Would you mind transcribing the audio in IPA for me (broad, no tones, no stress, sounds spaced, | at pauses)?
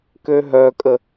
k ø ɦ œ kʼ ə